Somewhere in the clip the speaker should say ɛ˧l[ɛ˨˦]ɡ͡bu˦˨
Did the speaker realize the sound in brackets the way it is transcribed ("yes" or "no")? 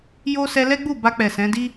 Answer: no